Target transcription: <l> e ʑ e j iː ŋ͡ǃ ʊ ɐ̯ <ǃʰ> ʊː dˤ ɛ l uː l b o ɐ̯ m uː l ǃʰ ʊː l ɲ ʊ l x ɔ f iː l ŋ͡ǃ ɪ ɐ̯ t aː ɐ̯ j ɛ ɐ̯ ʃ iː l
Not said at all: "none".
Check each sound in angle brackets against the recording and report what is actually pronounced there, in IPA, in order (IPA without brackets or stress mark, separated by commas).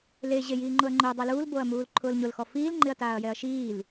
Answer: l, ŋ͡ǃ